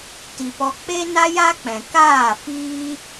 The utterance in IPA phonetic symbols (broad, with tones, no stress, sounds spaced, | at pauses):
t i˨ p ɔ˧ k͡p e˦ n a˦ j a˦ k͡p ɛ̃˨ k aː˦˨ f iː˦